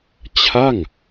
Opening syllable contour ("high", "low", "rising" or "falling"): falling